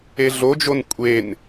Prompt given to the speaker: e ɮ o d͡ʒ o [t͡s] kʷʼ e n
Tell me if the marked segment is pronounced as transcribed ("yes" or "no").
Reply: no